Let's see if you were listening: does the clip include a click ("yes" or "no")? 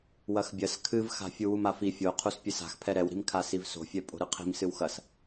no